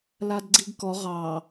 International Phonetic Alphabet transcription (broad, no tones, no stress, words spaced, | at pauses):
ladɡ͡ǀiɡkɔ ʁɑ